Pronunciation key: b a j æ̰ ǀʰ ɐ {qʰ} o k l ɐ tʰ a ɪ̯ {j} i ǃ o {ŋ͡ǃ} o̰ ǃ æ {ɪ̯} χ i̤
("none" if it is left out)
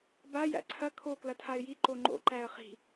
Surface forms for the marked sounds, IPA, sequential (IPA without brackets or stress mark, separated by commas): kʰ, j, ŋ͡ǃ, ə̯